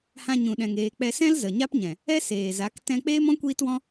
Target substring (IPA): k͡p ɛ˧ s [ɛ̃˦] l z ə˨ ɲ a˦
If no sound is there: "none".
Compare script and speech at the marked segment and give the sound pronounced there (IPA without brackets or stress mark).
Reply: ɛ̃˦